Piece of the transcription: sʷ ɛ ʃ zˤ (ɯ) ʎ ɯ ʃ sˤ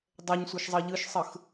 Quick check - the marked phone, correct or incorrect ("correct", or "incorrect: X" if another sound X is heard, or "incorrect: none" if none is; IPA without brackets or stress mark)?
incorrect: ɤ